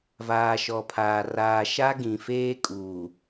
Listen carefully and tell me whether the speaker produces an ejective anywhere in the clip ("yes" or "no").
yes